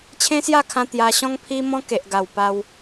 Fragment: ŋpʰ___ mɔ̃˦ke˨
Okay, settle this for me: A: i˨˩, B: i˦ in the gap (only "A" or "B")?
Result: B